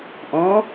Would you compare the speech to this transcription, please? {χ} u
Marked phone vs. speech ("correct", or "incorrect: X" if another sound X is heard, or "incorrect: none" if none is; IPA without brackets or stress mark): incorrect: ʔ